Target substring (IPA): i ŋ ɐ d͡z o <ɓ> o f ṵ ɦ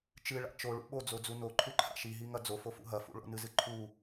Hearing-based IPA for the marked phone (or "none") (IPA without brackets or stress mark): f